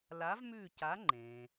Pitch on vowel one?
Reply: rising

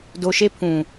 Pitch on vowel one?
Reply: low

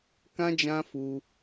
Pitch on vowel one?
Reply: high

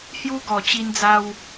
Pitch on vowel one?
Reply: high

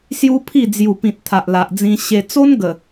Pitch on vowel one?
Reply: high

